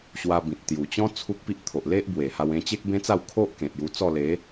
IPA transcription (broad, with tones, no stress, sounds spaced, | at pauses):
ɕ w a˧ b ĩ˨ t̚ t̪ j u˨˩ t͡ɕ ɔ̃˦ t͡sʰ u˦ k̚ p i˦ ʔ t̪ʰ o˨ ʔ l e˦ ʔ b w e˨˩ h a˧ w ẽ˧ t͡ɕ e˦ k̚ b ẽ˦ t͡s a˥˧ w kʰ o˦ ʔ k ẽ˨ t̚ j u˧ t͡s ɔ˥˧ l e˨˦